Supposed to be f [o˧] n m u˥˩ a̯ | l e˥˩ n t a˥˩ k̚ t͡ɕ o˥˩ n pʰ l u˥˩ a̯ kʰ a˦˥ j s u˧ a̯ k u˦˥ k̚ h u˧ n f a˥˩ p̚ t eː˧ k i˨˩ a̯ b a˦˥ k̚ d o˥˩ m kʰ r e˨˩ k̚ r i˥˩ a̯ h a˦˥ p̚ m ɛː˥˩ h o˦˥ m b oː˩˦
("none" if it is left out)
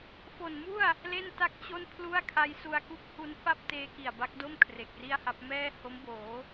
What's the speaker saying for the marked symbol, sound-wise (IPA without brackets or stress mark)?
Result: o˨˩